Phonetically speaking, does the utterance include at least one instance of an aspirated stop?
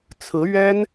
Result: yes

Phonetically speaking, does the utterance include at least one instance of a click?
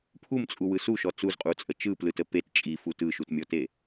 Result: no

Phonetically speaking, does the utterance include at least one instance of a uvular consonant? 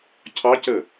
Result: no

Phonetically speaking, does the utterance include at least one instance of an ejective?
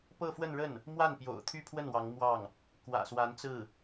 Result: no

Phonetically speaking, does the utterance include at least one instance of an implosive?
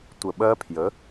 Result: yes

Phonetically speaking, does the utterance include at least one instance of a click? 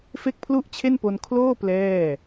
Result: no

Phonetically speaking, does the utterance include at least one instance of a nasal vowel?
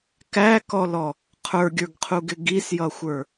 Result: no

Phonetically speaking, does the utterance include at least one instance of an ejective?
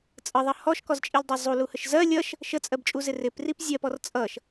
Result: yes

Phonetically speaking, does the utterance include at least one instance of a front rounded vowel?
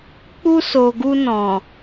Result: no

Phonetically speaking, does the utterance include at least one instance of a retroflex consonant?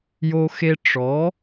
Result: yes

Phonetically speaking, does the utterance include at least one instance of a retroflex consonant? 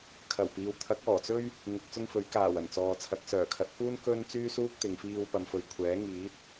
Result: no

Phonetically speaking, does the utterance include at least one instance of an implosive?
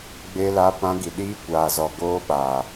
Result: yes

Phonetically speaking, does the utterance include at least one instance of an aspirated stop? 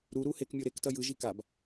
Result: no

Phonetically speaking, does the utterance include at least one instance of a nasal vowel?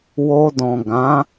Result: yes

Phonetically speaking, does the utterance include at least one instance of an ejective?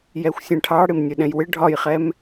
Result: no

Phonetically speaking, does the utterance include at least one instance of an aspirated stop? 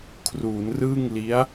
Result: yes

